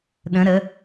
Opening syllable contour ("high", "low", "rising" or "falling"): rising